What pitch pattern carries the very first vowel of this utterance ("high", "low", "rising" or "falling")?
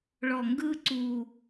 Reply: low